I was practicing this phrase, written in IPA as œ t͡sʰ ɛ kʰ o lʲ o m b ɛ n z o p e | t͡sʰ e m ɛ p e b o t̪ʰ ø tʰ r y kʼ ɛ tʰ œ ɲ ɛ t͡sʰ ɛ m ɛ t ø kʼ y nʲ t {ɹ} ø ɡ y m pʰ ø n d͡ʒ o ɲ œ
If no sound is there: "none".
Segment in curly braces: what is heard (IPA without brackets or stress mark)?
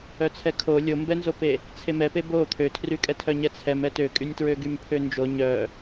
ɹ